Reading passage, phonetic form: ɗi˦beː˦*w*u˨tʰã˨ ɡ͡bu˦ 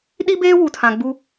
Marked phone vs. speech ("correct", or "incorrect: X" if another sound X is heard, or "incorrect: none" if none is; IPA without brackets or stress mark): correct